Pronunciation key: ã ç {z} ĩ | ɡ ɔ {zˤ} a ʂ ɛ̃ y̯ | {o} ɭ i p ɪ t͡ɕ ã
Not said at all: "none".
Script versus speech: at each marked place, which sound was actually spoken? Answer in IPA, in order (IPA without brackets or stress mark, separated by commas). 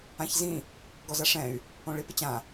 z, z, õ